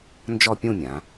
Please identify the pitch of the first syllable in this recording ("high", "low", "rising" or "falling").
falling